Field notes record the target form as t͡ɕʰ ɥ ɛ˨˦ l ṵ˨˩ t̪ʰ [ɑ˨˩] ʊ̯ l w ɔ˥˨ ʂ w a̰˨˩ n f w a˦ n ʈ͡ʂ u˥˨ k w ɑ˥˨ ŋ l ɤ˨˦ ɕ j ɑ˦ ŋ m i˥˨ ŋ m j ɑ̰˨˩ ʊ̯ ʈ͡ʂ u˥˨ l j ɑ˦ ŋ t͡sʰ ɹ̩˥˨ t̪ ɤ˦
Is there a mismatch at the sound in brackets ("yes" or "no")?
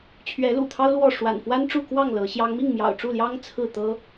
yes